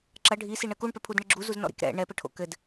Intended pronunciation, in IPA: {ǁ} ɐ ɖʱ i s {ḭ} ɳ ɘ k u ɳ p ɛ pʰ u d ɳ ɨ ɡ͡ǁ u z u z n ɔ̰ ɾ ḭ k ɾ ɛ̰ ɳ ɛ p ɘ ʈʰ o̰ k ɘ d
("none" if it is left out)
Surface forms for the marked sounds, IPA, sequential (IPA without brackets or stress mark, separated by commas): ǁ, i